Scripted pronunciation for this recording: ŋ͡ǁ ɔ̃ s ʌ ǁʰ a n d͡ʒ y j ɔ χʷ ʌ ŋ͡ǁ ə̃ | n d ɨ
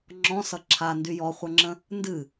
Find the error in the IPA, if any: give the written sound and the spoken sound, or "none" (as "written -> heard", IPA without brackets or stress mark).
d͡ʒ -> d